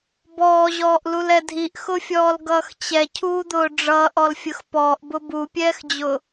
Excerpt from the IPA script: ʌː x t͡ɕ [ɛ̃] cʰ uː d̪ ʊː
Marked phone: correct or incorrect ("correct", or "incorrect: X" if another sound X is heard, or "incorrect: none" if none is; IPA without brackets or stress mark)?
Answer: incorrect: ɛ